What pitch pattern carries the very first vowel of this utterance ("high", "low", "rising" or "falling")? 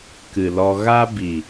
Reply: low